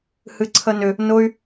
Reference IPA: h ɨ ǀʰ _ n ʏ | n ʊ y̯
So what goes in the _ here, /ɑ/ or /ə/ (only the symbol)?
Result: ə